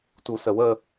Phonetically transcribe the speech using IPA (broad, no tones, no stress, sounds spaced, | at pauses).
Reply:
t u s ə w ə